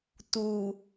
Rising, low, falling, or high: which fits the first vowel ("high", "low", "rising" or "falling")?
low